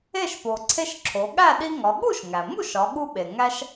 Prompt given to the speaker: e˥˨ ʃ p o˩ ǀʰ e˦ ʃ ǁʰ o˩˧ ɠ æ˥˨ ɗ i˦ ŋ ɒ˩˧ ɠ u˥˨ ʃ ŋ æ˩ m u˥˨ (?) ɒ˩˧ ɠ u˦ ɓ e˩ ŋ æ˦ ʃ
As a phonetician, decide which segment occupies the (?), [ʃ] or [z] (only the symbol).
ʃ